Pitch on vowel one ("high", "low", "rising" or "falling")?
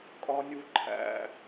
high